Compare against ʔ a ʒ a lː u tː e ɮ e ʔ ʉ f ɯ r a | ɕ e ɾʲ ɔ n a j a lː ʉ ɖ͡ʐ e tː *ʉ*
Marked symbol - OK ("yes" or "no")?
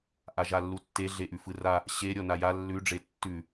yes